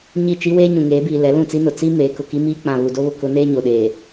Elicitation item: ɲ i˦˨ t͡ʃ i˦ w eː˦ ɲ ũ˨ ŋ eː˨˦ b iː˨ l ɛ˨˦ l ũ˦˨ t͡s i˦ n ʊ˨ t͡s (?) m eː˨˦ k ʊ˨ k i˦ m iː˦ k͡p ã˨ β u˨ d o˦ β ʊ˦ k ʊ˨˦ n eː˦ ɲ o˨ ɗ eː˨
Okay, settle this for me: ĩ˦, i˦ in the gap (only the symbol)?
i˦